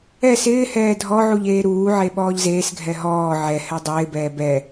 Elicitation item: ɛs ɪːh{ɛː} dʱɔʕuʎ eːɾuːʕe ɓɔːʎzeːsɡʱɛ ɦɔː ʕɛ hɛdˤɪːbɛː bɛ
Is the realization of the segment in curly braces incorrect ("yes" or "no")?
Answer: no